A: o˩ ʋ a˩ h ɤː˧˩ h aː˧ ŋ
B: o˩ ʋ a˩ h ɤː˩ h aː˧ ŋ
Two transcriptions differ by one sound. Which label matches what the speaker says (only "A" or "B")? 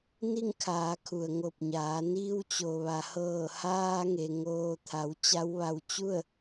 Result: A